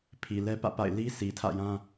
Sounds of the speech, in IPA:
pʰ i˨ l ɛ˦ p ä̰˦˨ p a̰˦˨ ɪ̯ l i˦ sʰ i˨ tʰ ä̰˦˨ j ã˦

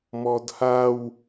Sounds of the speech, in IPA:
m ɔ d h a w

